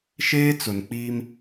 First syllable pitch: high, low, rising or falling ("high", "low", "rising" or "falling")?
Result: high